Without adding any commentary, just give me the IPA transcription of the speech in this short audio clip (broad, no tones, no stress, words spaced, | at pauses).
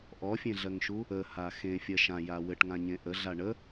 ʔɔfʲẽɮɜŋʃu | əha xẽfʲɜ ʃãja wɘʈŋãɲẽ ʔəɮa ɳə